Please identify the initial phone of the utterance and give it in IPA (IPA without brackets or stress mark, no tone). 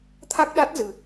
t̪ʰ